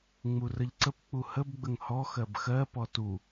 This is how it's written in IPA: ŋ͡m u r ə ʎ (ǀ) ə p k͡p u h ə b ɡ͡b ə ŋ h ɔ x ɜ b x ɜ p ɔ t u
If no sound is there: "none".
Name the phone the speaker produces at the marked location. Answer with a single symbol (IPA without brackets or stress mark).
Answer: ǀ